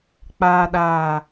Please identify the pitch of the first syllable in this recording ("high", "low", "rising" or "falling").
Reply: low